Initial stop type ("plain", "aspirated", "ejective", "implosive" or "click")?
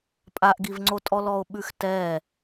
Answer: ejective